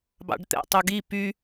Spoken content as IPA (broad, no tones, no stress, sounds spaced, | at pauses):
b ɑ̰ ɖ t̪ ɛ̰ tˤ u ɡ i p y